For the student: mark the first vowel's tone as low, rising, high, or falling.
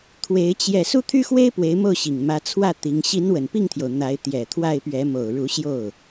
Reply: rising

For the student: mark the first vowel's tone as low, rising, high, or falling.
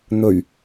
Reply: low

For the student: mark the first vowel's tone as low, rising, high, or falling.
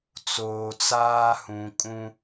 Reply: low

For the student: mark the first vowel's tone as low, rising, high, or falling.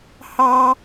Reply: high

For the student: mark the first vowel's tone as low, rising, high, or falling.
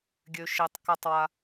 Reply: low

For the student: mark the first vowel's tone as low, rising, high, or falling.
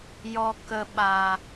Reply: low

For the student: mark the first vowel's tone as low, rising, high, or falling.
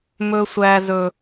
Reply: high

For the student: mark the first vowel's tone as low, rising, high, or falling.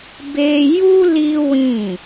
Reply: high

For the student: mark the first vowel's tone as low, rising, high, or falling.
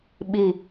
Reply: low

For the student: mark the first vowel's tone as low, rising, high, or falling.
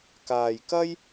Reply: low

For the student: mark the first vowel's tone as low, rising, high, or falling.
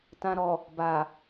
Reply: low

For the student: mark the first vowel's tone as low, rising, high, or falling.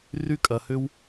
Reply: high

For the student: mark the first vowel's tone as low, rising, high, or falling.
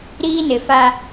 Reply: high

